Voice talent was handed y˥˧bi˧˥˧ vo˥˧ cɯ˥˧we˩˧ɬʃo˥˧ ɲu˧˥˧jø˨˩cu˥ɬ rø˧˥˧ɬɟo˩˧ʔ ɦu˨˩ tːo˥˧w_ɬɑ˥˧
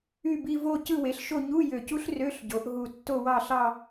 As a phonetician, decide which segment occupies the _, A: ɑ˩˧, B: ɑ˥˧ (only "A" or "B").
B